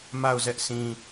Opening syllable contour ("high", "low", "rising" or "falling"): falling